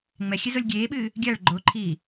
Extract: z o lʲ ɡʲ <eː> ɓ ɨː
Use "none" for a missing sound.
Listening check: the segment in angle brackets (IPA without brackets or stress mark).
eː